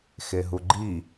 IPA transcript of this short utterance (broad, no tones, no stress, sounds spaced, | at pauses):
x e ɦ u ɡ͡ǃ i